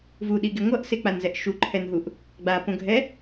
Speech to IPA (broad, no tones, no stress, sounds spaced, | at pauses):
v u ɗ i ɡ e ŋʷ ʌ ʔ s e k͡p a n z ɛ ʔ ʃ u ǃʰ ɛ n ɦ u ʔ | ɡ͡b a p õ ɡʱ ɛ